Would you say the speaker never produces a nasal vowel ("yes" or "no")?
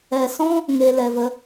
no